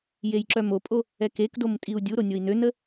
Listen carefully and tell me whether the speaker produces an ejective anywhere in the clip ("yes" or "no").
yes